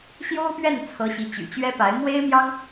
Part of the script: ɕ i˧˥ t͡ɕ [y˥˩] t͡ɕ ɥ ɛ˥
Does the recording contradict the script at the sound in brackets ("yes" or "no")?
yes